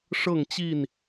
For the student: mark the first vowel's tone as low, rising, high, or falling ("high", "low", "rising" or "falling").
falling